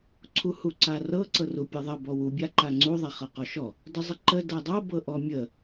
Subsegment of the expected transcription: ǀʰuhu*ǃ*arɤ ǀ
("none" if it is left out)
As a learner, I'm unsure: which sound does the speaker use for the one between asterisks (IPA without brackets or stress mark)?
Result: ǀ